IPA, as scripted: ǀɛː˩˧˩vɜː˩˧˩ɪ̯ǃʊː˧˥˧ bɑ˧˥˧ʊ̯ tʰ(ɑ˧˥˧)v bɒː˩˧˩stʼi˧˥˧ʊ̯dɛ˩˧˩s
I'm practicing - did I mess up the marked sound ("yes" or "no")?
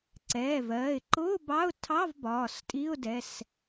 no